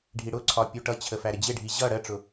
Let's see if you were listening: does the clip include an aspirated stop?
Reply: yes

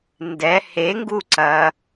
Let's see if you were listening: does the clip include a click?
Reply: yes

